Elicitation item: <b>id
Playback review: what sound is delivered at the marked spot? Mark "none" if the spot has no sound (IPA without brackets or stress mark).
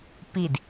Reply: p